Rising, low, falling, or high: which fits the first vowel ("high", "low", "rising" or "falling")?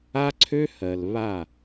high